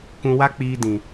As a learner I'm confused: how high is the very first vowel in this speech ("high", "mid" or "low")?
high